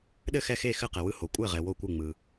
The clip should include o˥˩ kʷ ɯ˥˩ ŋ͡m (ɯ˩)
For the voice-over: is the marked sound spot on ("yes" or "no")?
yes